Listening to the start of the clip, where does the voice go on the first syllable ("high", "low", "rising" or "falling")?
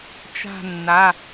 falling